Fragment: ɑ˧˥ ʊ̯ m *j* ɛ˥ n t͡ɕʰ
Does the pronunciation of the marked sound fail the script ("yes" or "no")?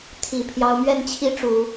yes